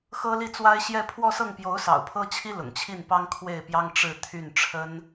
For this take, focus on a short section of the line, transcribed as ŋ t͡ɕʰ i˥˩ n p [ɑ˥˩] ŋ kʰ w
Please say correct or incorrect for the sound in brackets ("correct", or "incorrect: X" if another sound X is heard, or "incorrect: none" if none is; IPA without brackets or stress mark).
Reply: incorrect: ɑ˥